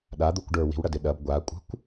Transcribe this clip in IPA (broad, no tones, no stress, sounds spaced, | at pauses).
ɗ a d̪ u kʷ ɖ ə˞ w i̤ w ɽ ɐ d ɪ ɗ ɐ b ɡʷ a kʷʼ ə̤ kʷ